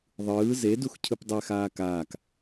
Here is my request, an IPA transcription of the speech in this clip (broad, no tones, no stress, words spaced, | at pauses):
ðˤɯː zedux cʰɯpdˤɛ xaːkaːk